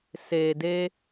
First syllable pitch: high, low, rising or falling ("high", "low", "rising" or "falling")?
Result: low